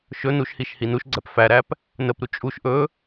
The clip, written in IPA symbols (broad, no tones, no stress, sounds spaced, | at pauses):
ʃ ɵ n u ʃ h i ʃ h i n u ʃ ɡ͡ǀ æ p f æ ɾ æ p | n ə p ɾ u t͡ʃʼ u ʃ ʔ ɵ